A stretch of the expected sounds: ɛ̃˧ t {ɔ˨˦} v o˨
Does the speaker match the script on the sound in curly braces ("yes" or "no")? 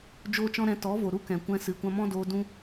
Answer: yes